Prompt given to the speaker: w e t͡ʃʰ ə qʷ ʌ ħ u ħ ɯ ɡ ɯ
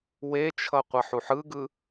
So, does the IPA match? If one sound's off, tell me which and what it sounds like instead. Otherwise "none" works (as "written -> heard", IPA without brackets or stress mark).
ə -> ʌ